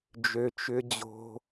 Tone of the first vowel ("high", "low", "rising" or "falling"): low